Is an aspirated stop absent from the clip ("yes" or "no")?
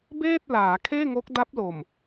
no